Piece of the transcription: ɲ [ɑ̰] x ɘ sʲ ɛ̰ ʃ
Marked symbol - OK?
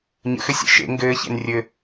no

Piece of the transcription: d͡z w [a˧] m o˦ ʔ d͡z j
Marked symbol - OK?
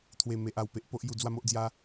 no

